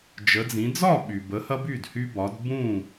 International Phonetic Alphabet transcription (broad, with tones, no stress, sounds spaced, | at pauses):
d͡ʒ ə˨˦ d͡z ĩ˨˦ d͡z ɒ˥˨ ɓ y˩ b ə˨˦ h ɐ˦ b y˥˨ d h y˦ b ɒ˨˦ d b ũ˥˨